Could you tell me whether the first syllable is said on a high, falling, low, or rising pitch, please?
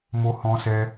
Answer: high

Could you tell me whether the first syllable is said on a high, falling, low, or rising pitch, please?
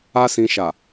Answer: high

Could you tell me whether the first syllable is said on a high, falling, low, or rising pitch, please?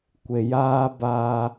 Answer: low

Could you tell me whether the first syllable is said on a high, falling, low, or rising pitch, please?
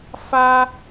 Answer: high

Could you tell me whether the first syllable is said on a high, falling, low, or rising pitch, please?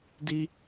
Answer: high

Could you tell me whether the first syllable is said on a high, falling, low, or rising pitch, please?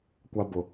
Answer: high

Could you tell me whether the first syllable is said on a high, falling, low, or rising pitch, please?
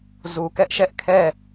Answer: low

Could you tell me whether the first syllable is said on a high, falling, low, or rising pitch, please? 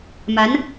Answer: rising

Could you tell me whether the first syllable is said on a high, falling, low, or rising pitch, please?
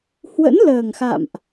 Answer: rising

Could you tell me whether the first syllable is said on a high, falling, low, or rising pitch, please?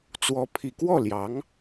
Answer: rising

